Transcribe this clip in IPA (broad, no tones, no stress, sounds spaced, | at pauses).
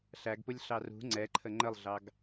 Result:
ɬ æ ɡ p ʊ lʲ ɬ ɑ r ṳ ŋ͡ǀ ɛ ǃʰ ə ŋ͡ǃ ə lˠ ɮ ɑ ɡ